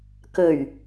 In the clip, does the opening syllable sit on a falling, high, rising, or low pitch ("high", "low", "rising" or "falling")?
low